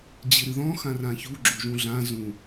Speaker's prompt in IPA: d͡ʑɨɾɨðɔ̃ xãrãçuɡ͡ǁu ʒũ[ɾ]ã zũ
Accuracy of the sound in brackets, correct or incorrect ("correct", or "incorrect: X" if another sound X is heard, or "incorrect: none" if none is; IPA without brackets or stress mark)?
incorrect: ɮ